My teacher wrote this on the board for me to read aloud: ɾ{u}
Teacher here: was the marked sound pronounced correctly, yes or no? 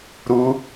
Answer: yes